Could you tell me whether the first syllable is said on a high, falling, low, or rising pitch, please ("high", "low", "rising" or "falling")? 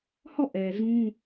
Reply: falling